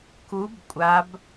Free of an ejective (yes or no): no